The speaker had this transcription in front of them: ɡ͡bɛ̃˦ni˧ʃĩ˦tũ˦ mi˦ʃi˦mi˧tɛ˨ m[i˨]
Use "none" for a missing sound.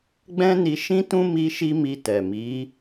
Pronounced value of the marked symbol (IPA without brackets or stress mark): i˨˦